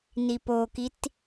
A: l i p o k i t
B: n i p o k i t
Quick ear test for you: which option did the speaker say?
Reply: B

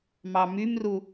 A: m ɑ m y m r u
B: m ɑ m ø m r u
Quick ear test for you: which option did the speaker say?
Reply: A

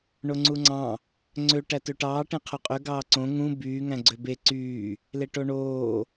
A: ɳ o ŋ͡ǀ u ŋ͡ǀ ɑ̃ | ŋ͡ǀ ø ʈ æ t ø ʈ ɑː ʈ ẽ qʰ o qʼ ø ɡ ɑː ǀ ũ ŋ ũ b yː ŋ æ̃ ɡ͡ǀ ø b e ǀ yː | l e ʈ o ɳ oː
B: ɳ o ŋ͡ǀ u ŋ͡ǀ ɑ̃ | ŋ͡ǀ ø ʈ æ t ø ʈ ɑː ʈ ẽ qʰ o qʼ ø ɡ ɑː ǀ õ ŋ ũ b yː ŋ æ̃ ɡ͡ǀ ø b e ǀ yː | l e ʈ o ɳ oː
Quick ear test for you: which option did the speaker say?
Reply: B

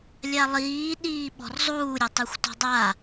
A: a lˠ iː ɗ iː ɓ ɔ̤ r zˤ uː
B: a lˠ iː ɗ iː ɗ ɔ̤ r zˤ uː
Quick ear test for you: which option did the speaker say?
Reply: A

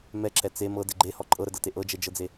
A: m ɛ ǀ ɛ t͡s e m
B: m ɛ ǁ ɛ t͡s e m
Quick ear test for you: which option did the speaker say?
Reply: B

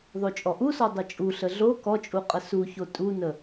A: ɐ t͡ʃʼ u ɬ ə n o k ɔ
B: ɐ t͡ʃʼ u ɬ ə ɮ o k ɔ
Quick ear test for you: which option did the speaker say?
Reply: B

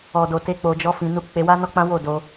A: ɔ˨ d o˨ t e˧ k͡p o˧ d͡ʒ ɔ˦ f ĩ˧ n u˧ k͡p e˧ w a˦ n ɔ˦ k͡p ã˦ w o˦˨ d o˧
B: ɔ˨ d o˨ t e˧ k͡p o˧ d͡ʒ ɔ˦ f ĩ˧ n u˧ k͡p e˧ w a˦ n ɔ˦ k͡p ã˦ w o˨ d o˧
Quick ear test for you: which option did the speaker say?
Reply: A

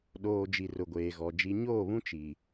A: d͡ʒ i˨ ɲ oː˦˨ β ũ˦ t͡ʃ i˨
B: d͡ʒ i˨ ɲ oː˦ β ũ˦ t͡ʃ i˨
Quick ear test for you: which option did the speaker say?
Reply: A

